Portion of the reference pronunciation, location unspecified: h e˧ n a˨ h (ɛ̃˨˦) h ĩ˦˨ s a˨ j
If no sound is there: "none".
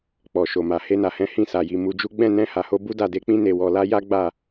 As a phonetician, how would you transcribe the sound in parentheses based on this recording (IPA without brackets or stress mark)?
ɛ̃˨˦